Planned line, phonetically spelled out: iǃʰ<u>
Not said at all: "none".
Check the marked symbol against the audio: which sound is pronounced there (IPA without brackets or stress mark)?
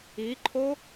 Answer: o